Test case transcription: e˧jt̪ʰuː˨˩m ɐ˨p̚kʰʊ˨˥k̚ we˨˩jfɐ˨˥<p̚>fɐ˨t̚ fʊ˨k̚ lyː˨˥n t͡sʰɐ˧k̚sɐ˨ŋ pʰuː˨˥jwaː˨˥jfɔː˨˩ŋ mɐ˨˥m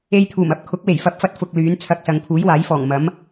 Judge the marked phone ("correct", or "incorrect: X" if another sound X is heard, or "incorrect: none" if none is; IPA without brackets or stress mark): correct